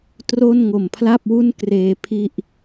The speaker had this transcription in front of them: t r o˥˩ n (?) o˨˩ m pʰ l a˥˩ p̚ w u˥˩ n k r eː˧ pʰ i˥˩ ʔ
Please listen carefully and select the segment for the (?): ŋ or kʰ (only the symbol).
ŋ